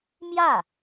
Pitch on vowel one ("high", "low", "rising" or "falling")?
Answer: falling